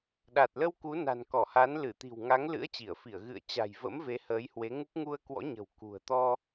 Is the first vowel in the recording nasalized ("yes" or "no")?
no